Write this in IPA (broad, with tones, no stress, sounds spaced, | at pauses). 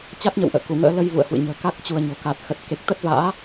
t͡ɕ a˦˥ t̚ ɲ ə̰˧˨ w ʔ ə̰ː˧˨ k u˧˩ ŋ ə̰ː˧˥ l ə˧ j v ṵ˧˨ ə̯ h w ɨ̰˧˨ ɲ ə̤ː˨˩ k a˦˥ k̚ t͡ɕ u˧ ə̯ ɲ o̤˨˩ k a˨˩ t̚ x ə˨˩ t̚ k e˨˩ k̚ t̪ ə˦˥ t̚ v a̰ː˧˥